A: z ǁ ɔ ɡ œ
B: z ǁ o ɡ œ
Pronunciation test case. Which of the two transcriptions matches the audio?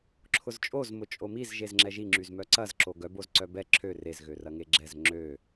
B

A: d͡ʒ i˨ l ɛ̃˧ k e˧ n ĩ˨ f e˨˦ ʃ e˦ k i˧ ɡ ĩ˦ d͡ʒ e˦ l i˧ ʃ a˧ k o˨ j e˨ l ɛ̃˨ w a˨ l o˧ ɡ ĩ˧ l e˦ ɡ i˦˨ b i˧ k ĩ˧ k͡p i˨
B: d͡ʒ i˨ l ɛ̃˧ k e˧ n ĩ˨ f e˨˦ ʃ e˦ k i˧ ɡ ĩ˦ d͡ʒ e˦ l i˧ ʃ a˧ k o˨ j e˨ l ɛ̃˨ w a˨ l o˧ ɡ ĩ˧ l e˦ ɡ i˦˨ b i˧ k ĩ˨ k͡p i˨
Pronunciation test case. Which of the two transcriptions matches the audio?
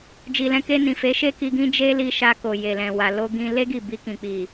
B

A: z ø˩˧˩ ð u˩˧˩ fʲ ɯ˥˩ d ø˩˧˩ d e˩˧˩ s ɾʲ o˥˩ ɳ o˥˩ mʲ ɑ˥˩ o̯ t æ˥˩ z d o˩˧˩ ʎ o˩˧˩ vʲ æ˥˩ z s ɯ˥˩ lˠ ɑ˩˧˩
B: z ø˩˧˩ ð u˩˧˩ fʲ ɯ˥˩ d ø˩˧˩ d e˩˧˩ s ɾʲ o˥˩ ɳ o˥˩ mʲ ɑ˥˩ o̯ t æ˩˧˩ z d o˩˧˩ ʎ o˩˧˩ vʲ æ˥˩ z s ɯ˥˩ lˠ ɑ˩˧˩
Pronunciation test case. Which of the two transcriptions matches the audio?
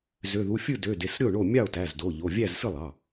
B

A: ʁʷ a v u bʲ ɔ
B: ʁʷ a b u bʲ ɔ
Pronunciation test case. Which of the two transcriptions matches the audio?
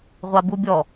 B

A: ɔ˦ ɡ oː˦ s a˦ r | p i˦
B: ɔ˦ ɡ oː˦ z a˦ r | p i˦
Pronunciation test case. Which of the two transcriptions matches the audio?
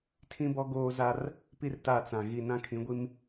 B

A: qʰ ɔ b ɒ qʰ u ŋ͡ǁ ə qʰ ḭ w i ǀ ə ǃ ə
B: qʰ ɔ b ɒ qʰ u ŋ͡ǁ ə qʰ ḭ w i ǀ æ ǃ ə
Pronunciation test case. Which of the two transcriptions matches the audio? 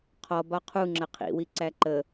B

